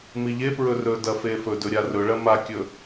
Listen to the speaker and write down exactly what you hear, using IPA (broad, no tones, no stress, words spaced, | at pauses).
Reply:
miʎepɹɵ rɵdɐ fefɵdɵ ɾʲarɵɭɐ makʲɵ